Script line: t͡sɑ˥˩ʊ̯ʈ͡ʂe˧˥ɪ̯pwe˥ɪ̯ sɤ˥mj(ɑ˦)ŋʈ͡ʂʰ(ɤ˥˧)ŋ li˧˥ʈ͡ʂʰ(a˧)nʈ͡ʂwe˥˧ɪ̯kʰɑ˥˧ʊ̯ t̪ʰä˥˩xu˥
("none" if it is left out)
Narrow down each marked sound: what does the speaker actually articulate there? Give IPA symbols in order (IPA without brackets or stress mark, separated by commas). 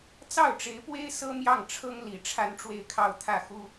ɑ˥˩, ɤ˥, a˥